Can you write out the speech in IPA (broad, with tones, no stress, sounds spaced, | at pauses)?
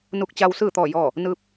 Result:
n u˧ k̚ t͡ɕ a˧ w s ɯː˥˨ t̪ ɔː˥˨ j ɔː˥˨ | n ɯː˧ p̚